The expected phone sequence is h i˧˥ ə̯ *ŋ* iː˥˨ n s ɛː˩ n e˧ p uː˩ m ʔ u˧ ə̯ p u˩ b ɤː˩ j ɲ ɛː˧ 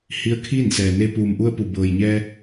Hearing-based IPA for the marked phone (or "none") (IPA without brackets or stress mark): kʰ